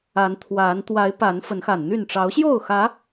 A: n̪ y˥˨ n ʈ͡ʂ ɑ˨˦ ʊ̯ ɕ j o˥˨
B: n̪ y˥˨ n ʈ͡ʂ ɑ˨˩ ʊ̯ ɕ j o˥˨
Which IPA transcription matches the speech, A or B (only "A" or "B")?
A